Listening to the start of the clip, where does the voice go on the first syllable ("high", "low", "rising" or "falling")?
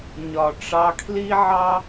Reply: low